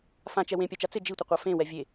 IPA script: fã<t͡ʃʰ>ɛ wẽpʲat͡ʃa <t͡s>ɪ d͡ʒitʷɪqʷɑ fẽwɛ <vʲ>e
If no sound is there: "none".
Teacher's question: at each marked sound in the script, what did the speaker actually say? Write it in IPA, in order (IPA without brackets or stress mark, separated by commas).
t͡ʃ, t͡s, vʲ